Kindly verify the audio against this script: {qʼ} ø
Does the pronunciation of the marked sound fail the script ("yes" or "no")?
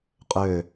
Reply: no